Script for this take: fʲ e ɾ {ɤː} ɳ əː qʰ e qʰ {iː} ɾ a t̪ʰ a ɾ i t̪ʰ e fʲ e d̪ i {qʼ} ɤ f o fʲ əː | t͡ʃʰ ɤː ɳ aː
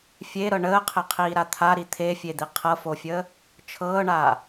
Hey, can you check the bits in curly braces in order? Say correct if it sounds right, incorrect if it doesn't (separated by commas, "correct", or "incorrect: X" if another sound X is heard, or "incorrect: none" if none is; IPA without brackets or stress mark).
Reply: incorrect: ɤ, correct, incorrect: qʰ